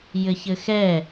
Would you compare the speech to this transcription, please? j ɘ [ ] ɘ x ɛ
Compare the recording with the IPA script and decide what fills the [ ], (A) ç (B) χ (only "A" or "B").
A